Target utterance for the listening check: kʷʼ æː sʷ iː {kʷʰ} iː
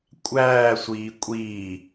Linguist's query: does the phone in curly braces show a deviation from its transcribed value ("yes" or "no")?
yes